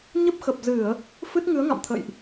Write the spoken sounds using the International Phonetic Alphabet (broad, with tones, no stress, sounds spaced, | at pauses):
ɲ ə˦˥ p̚ x ə˨˩ p̚ z ɨ˧˩˨ ə̯ | f ɨ˦˥ t̚ ŋ ɨ˨˦ ə̯ ŋ a̰˧˨ m t̪ʰ ə̰˧˨ j ʔ